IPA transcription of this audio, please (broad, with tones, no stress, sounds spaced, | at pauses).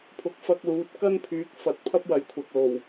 pʰ ʊ˨˥ k̚ f ɐ˧ k̚ l uː˨˥ t̚ k ɐ˥ n pʰ yː˨˥ k̚ f ɐ˨˥ t̚ pʰ ɐ˥ p̚ w ɐ˨˥ j kʷʰ ɐ˨ k̚ l o˨˩ w